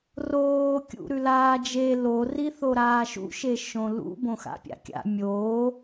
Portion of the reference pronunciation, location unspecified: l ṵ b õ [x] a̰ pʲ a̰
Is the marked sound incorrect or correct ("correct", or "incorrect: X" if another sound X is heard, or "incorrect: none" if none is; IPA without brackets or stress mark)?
correct